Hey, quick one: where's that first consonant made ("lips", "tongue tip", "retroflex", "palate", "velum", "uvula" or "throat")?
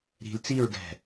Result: tongue tip